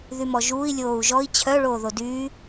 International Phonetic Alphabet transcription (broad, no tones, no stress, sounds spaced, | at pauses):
ð y m ɔ ʒ uː i̯ lʲ oː u̯ ʒ ɔ i̯ t͡ɕʰ œ ɭ oː ð o d yː